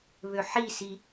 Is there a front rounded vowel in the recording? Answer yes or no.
yes